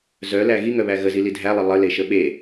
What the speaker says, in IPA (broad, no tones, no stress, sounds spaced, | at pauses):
z œ l æ ɣ i ŋ œ β æ ɣ ə z i l i dʱ æ lˠ ə lˠ ə l e ʃ ə ɓ e